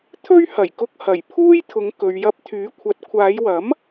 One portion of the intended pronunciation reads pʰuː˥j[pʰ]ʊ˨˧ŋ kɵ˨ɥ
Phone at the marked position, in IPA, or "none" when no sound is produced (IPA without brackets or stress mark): t̪ʰ